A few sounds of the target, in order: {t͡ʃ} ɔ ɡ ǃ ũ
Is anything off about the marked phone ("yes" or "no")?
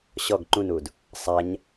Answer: yes